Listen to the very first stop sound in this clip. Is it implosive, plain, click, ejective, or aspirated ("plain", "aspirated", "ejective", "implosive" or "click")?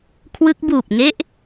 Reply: aspirated